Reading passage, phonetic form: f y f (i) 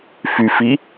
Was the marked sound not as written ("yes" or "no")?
no